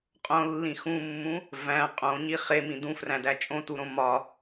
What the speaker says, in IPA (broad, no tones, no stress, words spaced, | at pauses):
qʼõlːĩ xũmːũ | væ̃ qʼõɲi χemĩ dũfræ̃dæ t͡ʃʼõtuɾõ mɒ